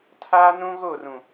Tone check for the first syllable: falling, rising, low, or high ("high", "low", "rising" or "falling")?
high